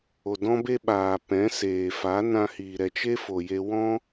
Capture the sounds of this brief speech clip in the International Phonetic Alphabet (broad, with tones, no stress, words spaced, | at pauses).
o˨dɔ̃˦be˦ɓaː˨ pɛ̃˨˦seː˨ fa˨˦nã˧hiː˨ ɾɛ˨t͡ʃe˦ fo˨je˧ wɔ̃˦